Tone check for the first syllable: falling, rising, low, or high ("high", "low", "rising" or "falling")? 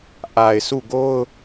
low